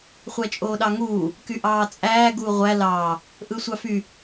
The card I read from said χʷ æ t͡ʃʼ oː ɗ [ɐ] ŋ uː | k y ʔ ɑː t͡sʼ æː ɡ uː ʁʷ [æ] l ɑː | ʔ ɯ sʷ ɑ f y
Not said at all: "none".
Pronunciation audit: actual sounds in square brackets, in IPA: ɑ, æ

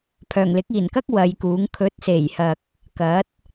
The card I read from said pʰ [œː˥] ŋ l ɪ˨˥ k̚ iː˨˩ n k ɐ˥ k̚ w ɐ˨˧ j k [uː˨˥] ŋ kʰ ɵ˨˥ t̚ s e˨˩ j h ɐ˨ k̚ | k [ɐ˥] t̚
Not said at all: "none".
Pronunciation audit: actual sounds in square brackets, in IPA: œː˨˩, uː˨˥, ɐ˨˥

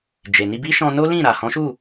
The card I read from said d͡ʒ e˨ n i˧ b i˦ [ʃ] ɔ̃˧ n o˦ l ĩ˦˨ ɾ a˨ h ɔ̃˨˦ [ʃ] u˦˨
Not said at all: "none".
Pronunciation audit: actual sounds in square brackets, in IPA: ʃ, ʃ

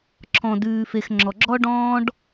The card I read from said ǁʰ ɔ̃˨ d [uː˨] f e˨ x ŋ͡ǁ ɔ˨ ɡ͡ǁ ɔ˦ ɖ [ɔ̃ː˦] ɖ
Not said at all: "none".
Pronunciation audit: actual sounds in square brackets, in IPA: ʉː˨, ɔ̃ː˦

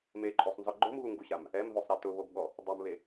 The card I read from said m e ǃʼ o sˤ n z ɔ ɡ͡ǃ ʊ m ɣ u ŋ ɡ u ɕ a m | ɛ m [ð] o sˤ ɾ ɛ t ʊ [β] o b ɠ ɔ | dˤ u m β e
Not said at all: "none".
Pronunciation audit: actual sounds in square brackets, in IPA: ð, β

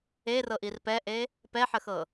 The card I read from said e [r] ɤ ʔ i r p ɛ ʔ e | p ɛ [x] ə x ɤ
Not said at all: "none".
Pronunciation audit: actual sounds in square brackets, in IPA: r, ħ

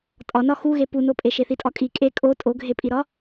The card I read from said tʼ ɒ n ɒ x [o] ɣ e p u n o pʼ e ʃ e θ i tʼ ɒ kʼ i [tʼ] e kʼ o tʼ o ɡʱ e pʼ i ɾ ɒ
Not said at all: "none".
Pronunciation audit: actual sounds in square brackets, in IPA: u, kʼ

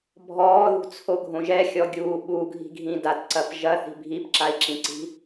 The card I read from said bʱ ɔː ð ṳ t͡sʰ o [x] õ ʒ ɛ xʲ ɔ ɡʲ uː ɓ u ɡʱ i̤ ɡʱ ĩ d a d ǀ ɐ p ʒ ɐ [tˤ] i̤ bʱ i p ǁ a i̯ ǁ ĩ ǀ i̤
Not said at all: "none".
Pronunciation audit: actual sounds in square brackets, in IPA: ɡʱ, θ

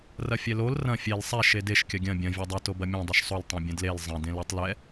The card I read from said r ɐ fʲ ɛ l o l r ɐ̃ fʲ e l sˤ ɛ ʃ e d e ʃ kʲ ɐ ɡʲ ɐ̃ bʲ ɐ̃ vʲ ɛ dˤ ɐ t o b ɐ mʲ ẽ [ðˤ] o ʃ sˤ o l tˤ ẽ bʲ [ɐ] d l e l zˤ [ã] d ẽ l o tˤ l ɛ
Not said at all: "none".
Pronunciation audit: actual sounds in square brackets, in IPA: dˤ, ɐ̃, ɐ̃

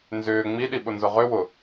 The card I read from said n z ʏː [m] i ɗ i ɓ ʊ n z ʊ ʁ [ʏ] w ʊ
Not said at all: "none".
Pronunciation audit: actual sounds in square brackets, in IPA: ŋ͡m, ʏ

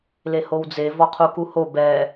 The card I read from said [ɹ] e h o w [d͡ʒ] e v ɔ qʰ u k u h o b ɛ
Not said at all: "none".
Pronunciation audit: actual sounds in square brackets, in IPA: l, d͡z

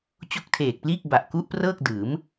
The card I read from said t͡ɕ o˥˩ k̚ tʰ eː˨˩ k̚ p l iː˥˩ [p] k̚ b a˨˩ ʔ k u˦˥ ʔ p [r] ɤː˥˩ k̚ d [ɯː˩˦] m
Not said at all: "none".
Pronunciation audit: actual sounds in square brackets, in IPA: none, r, ɯː˩˦

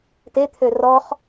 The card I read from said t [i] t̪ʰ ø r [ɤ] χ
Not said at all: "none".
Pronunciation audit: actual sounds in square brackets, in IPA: e, ɔ

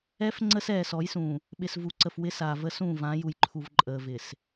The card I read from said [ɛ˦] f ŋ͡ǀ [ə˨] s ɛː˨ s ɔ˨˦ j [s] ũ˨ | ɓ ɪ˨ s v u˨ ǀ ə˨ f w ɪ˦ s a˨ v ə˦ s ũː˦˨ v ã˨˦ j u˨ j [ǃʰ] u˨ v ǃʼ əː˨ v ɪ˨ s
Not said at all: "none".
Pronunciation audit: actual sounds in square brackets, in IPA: ɛ˦, ə˦, s, ǃʰ

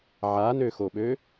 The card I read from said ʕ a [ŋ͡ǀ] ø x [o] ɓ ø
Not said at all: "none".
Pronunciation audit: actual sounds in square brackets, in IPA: n, o

